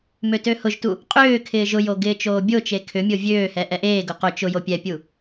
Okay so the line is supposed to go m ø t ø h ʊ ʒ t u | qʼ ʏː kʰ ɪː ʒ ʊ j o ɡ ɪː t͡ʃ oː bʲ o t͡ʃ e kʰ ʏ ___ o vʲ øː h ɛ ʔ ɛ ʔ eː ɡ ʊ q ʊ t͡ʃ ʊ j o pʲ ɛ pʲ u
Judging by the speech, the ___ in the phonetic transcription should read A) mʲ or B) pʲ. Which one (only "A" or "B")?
A